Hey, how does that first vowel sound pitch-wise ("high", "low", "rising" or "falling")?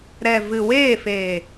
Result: low